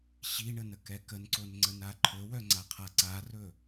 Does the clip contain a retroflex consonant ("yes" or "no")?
yes